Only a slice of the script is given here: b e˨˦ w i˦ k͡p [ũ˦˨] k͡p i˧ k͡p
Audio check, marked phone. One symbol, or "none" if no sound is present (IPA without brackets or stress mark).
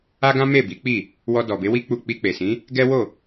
u˦˨